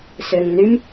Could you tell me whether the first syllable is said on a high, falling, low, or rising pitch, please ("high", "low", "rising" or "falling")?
low